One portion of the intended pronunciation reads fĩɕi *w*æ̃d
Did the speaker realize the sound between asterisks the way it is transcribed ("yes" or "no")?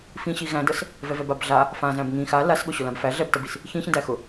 no